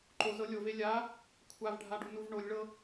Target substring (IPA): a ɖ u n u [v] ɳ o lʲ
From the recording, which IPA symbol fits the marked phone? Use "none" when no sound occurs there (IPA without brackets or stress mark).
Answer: v